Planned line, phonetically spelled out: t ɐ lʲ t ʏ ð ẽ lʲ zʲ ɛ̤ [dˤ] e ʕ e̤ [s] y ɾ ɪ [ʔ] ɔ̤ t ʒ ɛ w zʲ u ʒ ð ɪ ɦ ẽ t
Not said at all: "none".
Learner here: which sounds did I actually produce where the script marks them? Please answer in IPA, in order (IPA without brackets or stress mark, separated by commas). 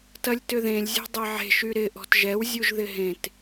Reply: dˤ, ʃ, ʔ